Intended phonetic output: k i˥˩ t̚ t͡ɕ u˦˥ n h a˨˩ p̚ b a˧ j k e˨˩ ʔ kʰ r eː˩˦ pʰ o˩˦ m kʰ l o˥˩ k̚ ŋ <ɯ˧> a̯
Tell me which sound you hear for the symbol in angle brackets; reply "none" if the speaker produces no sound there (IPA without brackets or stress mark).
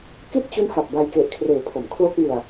ɯ˧